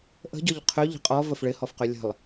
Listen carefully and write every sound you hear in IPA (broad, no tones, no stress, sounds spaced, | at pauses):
ʔ ə̤ ɟ ɔ ʎ qʰ ø ʎ ə̤ qʼ ɔ v ə f ɭ ɪ h ɔ f q ø lʲ ə̤ lˠ